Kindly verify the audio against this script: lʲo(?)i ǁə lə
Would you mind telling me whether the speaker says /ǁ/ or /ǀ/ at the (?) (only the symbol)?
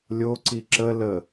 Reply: ǀ